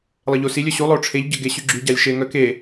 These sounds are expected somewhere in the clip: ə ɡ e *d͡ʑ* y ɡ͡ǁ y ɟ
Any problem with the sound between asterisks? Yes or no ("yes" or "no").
yes